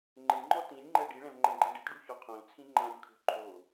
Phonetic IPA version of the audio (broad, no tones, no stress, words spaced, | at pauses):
ŋ͡ǃɪŋ͡ǃɔ tĩnʲŋ͡ǃɛ ɖiɭɛ̃vŋ͡ǃɛ̃ɡ͡ǃĩ ɖɪtɖuçɔ qʰõlt͡sʰĩ ŋ͡ǃãnʲkʰo̤ ǃʰo